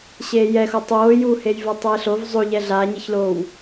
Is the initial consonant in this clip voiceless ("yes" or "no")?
yes